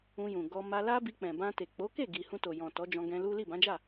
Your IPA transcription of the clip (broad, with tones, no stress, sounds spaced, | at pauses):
ũ˧ j ũ˨ ɡ ɔ˧ m a˧ l a˦ b i˧ k͡p ɛ̃˨ b ã˧ t e˨ k͡p o˨˦ k e˦˨ ɡ i˨ h ũ˧ t o˨ j ɔ̃˨ t ɔ˨˦ d͡ʒ ɔ̃˧ ɡ ɛ̃˧ l u˦ l i˦˨ b ã˨˦ d͡ʒ a˦˨